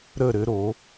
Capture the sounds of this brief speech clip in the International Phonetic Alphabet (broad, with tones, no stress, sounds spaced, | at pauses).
ɾ ə˧˩ ɾ ɘ˧ ɾ o˩˧